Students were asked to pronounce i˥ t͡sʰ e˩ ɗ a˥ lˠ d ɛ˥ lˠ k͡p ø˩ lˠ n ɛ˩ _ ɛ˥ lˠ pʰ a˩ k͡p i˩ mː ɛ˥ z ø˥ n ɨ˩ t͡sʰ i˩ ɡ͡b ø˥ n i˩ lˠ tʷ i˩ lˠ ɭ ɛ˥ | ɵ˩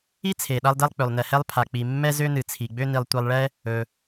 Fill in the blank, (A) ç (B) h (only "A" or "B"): B